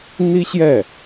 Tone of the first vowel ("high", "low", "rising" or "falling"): high